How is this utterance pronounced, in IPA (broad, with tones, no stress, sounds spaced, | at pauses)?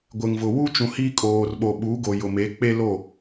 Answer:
ɡʷ ɪ˨ ŋ v ʊ˨ w u˦ t͡ʃ ũ˨ h i˦ kʼ oː˨ r ɓ o˨ ɓ uː˨˦ ɡ o˨ j ʊ˨ m e˨˦ k͡p e˦ l o˦˨